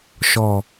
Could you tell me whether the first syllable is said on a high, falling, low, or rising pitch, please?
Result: low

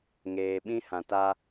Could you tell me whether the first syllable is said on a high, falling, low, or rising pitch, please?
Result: low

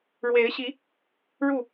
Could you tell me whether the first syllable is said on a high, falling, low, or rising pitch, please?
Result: rising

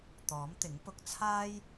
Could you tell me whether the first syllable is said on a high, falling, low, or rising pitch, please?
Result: rising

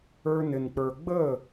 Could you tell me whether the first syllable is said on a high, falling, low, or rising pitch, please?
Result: high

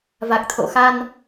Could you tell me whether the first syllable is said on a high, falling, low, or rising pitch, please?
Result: low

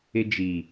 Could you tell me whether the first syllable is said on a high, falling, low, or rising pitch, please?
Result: high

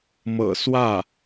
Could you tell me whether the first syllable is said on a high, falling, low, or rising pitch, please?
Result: low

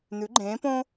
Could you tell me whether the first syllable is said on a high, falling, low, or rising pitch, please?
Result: rising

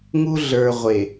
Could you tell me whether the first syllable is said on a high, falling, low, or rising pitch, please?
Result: high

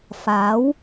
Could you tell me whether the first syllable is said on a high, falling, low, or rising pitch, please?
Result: rising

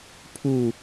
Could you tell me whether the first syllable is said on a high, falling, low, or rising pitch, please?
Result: falling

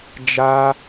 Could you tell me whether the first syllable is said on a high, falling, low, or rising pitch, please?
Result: high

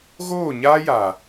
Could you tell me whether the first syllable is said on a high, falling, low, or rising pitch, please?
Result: falling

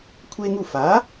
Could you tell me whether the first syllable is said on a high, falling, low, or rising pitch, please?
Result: high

